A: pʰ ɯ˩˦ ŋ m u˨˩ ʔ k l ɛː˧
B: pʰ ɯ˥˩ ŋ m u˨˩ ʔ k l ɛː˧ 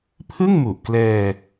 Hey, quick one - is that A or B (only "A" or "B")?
B